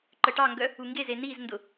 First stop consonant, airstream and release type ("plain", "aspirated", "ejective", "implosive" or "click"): click